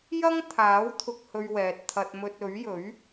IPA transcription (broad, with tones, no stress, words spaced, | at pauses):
jɐ˥ŋ t̪ʰaː˨˥w t̪ʰʊ˧k̚hɵ˧ɥwɛː˨t̚t̪ʰɐ˧t̚ mɵ˧t̚ɵ˨˥ɥjɵ˨˥ɥ